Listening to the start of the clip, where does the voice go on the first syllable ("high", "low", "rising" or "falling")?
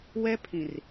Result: high